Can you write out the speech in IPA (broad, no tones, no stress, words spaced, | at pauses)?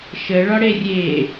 ʃəɭɒ ɽerʲe